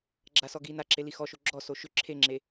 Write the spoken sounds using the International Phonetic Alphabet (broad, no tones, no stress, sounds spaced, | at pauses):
ɡ͡ǁ a s ɔ ɡ i n a ǁ e l i x ɔ ʃ o ɡ͡ǁ ɔ s o ʃ ʏ ǁʰ e ŋ͡ǁ e